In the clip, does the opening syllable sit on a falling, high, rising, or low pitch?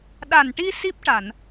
low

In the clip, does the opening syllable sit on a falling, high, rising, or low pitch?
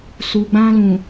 low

